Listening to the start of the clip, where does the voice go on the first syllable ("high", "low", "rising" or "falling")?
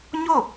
falling